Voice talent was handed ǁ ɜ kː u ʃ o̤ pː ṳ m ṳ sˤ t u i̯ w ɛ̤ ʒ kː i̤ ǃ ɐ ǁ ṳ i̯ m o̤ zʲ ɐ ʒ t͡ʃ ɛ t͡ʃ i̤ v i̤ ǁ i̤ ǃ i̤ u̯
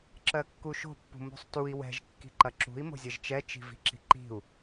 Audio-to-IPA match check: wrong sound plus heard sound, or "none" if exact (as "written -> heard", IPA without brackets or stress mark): none